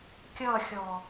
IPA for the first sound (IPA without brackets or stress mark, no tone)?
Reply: kʲ